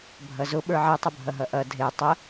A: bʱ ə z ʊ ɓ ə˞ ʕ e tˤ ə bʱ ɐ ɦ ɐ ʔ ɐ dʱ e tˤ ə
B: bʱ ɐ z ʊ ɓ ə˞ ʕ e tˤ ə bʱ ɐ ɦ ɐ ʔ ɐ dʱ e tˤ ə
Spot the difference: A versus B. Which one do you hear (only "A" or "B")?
B